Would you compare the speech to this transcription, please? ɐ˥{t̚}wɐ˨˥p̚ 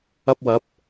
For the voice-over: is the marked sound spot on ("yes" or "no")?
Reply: no